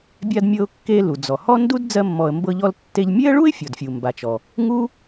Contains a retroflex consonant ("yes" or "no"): yes